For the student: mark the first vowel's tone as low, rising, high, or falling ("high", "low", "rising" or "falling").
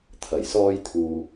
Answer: low